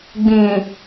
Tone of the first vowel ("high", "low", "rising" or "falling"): low